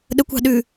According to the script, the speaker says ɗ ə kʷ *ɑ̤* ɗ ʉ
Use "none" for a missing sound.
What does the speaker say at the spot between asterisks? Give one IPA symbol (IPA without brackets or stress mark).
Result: ɑ̤